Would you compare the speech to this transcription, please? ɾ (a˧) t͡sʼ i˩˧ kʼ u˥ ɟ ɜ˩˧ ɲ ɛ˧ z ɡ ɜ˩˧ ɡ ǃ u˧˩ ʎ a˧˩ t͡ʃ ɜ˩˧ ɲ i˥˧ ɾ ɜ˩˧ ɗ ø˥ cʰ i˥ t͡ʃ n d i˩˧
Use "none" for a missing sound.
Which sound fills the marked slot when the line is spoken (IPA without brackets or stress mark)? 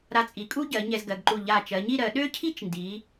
a˧